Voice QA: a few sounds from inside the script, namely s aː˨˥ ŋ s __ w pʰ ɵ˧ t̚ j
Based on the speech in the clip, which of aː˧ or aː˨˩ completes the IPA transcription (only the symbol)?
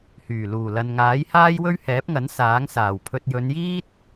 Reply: aː˨˩